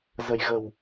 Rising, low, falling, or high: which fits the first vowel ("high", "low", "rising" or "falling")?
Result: low